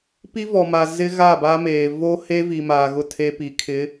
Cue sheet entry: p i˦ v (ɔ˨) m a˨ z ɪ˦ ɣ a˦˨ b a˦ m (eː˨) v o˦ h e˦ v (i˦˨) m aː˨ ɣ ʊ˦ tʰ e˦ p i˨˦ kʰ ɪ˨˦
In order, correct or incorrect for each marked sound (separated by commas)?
correct, correct, incorrect